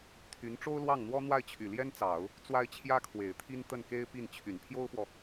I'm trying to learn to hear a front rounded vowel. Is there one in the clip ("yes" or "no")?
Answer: yes